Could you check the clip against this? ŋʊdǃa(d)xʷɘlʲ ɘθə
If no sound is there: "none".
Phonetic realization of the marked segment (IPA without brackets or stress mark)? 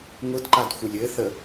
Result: d